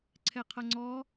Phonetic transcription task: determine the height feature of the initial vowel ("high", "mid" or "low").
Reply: mid